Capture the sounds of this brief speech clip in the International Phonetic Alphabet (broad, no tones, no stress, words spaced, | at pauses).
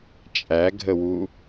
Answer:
t͡ʃʼæɡʱəwu